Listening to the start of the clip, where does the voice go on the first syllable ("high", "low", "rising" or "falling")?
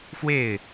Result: falling